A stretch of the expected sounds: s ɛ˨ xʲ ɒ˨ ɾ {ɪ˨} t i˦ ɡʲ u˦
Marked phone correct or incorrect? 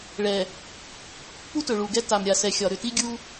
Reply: incorrect: ʏ˨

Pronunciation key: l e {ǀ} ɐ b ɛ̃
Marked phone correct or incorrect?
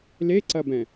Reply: correct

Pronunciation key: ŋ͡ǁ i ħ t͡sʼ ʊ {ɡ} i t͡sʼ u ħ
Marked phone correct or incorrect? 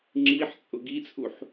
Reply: correct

